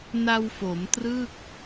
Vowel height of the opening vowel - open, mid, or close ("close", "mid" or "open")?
open